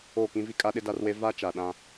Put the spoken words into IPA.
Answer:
oː˦˨ k ĩ˦ v i˦ kʼ a˦ ɗ ɪ˦ d a˦ r w e˦ v a˦ t͡ʃ a˨ ɗ ã˦

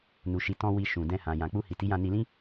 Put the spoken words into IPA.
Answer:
n u˨ ʃ i˨ t ɔ̃˧ w i˧ ʃ ũ˨ d ɛ̃˧ h ã˨ j ã˨ k͡p u˧ h i˨ t i˨˦ j ã˧ n i˧ l ĩ˦

